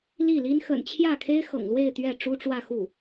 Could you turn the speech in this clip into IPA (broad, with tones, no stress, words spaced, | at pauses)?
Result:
li˥˩li˥n xə̰˨˩nt͡ɕʰjä˥˩kʰe˥ɪ̯ xɤ̰˨˩ŋlwe˥˧ɪ̯ t̪ɥɛ˥˩ ʈ͡ʂu˥ʈ͡ʂwä˥˧xu˥˩